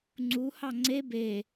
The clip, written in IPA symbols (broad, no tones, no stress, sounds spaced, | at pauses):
ŋ͡ǀ u h ɑ ŋ͡ǀ e b e